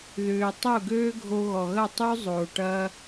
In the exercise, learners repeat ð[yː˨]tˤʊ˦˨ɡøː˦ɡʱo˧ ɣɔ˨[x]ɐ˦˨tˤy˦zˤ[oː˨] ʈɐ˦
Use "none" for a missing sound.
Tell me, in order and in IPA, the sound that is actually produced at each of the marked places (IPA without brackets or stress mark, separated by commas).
ʏː˨, ɣ, oː˨